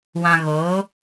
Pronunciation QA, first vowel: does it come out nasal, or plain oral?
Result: nasal